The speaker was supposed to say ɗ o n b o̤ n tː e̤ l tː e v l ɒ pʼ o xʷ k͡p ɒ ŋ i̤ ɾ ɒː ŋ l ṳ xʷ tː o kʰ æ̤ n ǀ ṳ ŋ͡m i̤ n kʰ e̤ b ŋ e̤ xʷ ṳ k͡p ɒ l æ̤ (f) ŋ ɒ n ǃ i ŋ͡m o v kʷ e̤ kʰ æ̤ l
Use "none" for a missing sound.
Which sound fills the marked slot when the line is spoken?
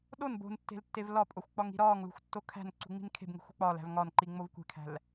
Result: v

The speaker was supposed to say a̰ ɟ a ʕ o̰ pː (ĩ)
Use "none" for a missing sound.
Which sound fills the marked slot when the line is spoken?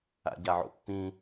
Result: ĩ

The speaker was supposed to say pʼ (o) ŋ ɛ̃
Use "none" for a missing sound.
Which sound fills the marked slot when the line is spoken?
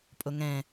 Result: o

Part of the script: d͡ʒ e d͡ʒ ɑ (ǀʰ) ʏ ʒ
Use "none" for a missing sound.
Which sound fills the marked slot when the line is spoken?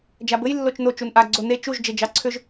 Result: ǀʰ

